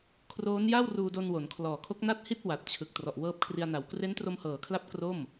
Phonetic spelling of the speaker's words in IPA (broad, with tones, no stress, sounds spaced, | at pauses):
kʰ r oː˦˥ n j a˥˩ w r uː˧ d o˧ n w o˩˦ n kʰ l ɔː˨˩ kʰ o˦˥ k̚ n a˥˩ t̚ h i˥˩ t̚ w a˨˩ t̚ t͡ɕʰ ɯ˨˩ k̚ t r ɔ˨˩ ʔ w ɤː˦˥ p̚ kʰ r i˧ a̯ n a˨˩ w k r e˦˥ n t r o˧ m h ɤː˨˩ kʰ l a˦˥ p̚ k r o˥˩ m